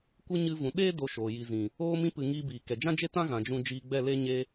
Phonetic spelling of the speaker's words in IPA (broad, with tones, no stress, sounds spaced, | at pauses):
kʷ ɨ˧ ɲ ɨ˧ v ũ˨ ɗ eː˦ d o˧ ʃ oː˨ j i˨ z ĩ˨ | oː˧ m ĩ˧ p ɨ˨ ŋ iː˧ b iː˨ k ɛ˨ d͡ʒ ã˦ d͡ʒ e˦ t ã˦ ɣ ã˨ d͡ʒ ũ˧ d͡ʒ iː˧ ɡ͡b ɛ˦˨ l e˦ ɲ e˧